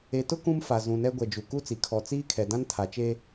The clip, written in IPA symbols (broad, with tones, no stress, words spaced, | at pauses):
e˨tʊ˦ kũ˦mfa˨zũ˨nɛ˦ ɡʷɛ˨d͡ʒu˨ ku˦t͡si˨ kʰɔ˨ t͡siː˦kʰɛ˨ dã˦ntʰa˨t͡ʃe˦